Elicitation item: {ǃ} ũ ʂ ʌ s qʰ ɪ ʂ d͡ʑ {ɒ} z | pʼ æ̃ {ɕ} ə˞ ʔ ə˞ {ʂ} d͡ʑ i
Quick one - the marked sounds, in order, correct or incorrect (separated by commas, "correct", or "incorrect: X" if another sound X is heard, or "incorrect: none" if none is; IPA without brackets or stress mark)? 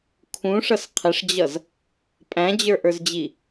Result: incorrect: kʰ, incorrect: ʌ, incorrect: d͡ʑ, incorrect: z